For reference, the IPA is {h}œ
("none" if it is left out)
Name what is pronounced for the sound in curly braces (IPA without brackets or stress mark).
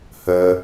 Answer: h